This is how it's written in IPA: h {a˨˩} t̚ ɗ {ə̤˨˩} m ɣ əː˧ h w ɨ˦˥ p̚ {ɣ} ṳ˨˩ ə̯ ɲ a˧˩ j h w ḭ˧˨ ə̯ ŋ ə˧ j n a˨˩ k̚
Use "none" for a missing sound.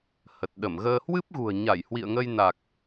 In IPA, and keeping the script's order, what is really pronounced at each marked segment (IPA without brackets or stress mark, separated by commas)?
ə˨˩, ə˧˩, ɣ